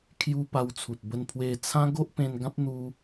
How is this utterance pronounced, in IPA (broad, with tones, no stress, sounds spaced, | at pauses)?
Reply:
kʰ j u˧ p a˧ w t͡sʰ u˨ t̚ b ə˧ n pʰ w e˧ t͡sʰ ã˦ ɡ o˦ ʔ p ẽ˧ n ɡ ã˦ p̚ n̪ u˧